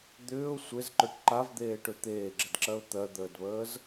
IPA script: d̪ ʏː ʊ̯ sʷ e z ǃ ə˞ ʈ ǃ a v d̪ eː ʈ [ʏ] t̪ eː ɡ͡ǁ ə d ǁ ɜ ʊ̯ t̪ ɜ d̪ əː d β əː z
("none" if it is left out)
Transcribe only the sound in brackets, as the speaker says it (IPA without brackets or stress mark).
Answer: ʏ